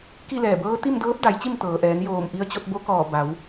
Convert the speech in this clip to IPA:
k i˥˨ l ɛː˧˩ b ɤː˧˥ t̪ i˥˨ m d ɤː˧˥ p̚ d a˩˧ j t͡ɕ i˥˨ m t̪ ɤː˩ ʔ ɛː˩˧ n j oː˧˩ m ʔ i˧ ə̯ t͡ɕ o˧ t̚ b o˧˥ k ɔː˧˩ b a˩˧ w

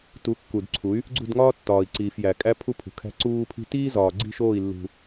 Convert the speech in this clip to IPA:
t u˨˦ kː u˨ d ǀʰ u˨˦ y̯ | ɡ͡ǀ ṳ˦˨ d ŋ ɒː˦ tː ɒː˨ i̯ ǀ iː˨ f j æ˨ kʼ æ˦ pʰ u˦ pʰ ṳ˨ kʰ æ̤˦ ǀ uː˦ pʰ i̤˦ t iː˦ z ɒː˨ ɡ͡ǀ i̤˦˨ ʃ oː˦˨ i̯ lː ṳ˦

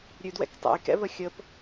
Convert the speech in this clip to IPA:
ɾʲ ʉ d w ɛ̰ k tˤ ɛ̰ j k ɛ̰ β ə xʲ ə p

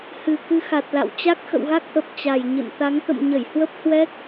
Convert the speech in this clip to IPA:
h ɨ˨˩ k ɨ˧ x a˨˩ t̚ l a̰˧˨ w t͡ɕ a˦˥ k̚ x ə̰˧˨ w ɣ a˦˥ k̚ ʔ ə˨˩ p̚ t͡ɕ a˨˩ j ɲ ɨ̰˧˨ n t̪ a˨˦ ŋ t̪ ə̰˧˨ m ɲ ə˧˩ j h w ə˦˥ p̚ h w ɛ˦˥ k̚

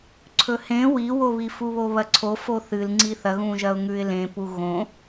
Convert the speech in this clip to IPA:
ǀʰ ɵ h ẽ w i w o β i f u β o β ɐ ǀʰ o f o θ ɨ l ŋ͡ǀ i θ ɐ ɣ ũ ʒ ɐ ʊ̯ ŋ ʉ ɪ̯ l ẽ p u ɣ õ

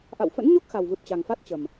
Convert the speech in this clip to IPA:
ʔ a̰˧˨ w f ə̰˧˥ n ɲ o˦˥ k̚ x a˨˩ w v ɨ˨˩ p̚ t͡ɕ a˨˩ ŋ f a˦˥ t̚ t͡ɕ ə˨˩ m

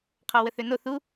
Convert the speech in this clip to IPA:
qʰ ɔ w ə θ ø n o θ u

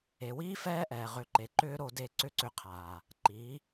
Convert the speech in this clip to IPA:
e˨ w iː˦ f ɛː˦ ʔ ɛː˨ ʁ ʏ˨˦ ǃ e˨ ǃ ʏː˦ ɾ o˧ d e˦˨ ǀ ʏ˦ ǀ ʏ˧ qʰ aː˨ | ǃ iː˨˦

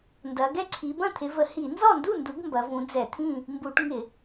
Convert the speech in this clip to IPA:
n d ɐ˨˦ ɡ ɛ˥˨ ǀʰ i˨˦ b ɐ̃˥˨ t̪ʰ ɪ˨˦ v ə˧˩˧ h i˧˩˧ n z ɔ˥˨ n d u˥˨ n d u˨˦ ɡ m b ɐ˨˦ v ũ˨˦ d͡z ɛ˧˩˧ t̪ʰ ĩ˥˨ | m b u˧˩˧ ʈ ŋ ɪ˧˩˧

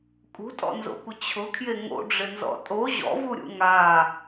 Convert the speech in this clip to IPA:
kʼ ṳ tʼ ɔ̰ n z o̰ kʷ ɪ t͡ɕʰ ʊ kʰ j e ŋ o̰ ɖ͡ʐ ɪ n z ɔ̰ tʼ o ʑ ɔ̰ v u ɾʲ ṵ ŋ a

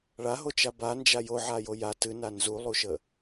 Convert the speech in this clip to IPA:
ɭ a ɦ o t͡ʃ a b a n d͡ʒ a j o ʕ a j o j a t ɨ n a n z u lˠ u ʃ ə

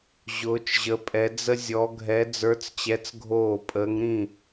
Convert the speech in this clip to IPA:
ʑ ʊː˧˥ t͡ʃ ʑ ə˧˥ pʼ ɛ˧˥ d͡z ə˥ zʲ ɔ˧˥ ɡʱ ɛ˧˥ d͡z ə˞˧˥ t͡s t͡ɕ ɛ˧˥ t͡s ɡʱ oː˥˨ pʼ əː˧˥ ŋ ɾ ĩ˥˨

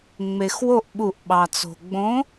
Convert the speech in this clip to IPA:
ŋ͡m e˩ x w o˧˩ ʔ ɓ u˨˩˦ ʔ ɓ ɑ˩ t͡s o̤˩ ɡ͡b õ˨˦

